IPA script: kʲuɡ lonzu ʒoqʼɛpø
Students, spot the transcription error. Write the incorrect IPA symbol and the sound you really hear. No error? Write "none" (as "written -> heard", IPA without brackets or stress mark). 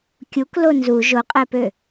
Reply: ɡ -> k